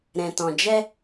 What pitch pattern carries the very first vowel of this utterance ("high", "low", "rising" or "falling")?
low